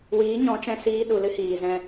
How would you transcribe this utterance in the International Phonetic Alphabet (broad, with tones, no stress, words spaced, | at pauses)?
wiː˨˦ ɲɔ̃˨˦t͡ʃɛ̃˧siː˧ ɗu˨lɨ˦ hiː˨zɛ̃˦